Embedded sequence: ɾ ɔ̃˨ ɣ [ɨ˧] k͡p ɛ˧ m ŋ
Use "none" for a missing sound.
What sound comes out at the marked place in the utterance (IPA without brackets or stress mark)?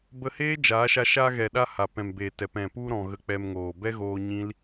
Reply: ə˧